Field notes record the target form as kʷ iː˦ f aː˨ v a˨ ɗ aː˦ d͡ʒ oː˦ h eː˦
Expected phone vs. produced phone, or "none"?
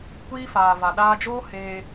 none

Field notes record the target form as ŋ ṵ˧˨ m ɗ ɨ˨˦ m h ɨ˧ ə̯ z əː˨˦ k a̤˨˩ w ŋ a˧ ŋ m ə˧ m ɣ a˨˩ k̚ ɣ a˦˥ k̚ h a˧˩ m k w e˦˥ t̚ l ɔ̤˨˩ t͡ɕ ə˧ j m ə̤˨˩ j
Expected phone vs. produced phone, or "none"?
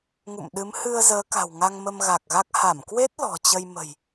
none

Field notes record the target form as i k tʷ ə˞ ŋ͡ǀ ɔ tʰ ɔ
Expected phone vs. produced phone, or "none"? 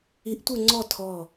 k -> ʔ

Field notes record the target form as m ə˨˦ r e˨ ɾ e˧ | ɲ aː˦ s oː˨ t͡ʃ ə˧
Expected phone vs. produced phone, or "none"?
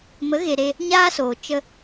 r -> ɣ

